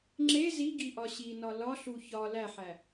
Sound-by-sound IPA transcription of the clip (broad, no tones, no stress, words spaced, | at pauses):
ŋ͡ǁe ziɡi ʔɒɕinɒ lɒɬu çɒ læħæ